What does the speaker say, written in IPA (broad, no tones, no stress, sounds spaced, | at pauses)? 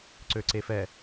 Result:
ǀ ø ǀ e f ɛ